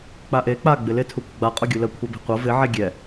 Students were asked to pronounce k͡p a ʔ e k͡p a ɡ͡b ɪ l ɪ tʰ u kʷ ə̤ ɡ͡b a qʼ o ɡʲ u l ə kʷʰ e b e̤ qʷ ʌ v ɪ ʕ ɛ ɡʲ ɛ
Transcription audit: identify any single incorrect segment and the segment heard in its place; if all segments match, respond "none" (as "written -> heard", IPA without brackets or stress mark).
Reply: none